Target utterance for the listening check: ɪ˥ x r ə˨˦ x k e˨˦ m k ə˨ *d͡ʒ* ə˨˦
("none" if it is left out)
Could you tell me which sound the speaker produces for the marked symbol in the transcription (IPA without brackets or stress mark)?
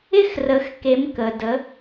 d